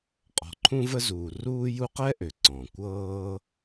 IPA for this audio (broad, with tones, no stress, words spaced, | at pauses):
qʼɔ̤˩ǃʰũ˦və˦zuː˩ ruː˦ju˦qɛ˥ʔø˩ ǀɔ̃˩kʷɤː˥